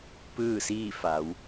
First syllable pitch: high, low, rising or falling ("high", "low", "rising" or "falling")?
falling